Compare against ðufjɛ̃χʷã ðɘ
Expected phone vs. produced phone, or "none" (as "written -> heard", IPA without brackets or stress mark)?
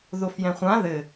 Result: u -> o